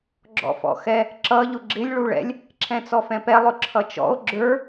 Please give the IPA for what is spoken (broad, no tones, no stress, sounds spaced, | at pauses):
ɡ͡ǁ ɔ̰ f ɔ̰ x ɛ | ǁ ʌ ʎ ʊ ɡ͡ǁ ɪ lʲ ɭ u ɭ ɛ̰ lʲ | ǁʰ ɛ̃ t͡s ɔ f ɛ̃ p ɛ lˠ ʊ ǁʰ ʌ t͡ʃ ɔ̰ o̯ ɡ͡ǁ ə˞